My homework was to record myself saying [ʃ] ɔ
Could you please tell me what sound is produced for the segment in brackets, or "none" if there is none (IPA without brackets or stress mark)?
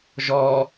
ʒ